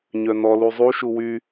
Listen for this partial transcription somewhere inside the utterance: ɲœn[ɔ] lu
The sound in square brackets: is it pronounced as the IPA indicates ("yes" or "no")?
yes